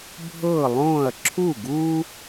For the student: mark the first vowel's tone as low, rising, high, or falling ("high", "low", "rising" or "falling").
falling